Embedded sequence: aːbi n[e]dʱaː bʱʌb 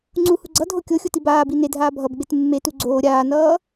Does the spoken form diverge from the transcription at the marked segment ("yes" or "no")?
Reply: no